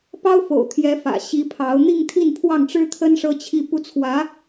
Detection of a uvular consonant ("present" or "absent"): absent